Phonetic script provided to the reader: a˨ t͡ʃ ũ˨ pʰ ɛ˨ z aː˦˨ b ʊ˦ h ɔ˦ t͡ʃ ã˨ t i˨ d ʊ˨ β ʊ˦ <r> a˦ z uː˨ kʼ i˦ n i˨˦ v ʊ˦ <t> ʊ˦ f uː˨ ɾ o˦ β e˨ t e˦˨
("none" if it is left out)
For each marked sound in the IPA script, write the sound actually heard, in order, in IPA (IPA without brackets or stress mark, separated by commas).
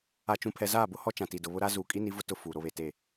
ɾ, t